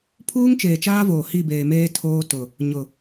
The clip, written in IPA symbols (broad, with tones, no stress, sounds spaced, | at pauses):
pʰ uː˦ ŋ t͡ʃ eː˨ t͡ʃ aː˦ v oː˨ h i˦˨ b eː˨ m eː˦ tʰ oː˦ t ʊ˨ | ɲ ʊ˨